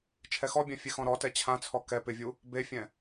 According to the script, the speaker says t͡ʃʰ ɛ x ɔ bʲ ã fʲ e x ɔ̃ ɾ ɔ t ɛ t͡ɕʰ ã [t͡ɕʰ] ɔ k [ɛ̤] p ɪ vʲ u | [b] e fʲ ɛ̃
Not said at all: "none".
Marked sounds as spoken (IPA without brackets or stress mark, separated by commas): t͡sʰ, ɛ, b